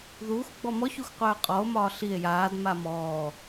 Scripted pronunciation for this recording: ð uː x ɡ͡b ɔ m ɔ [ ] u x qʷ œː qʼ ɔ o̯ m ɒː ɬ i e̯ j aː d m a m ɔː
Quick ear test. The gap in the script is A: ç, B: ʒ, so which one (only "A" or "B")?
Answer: A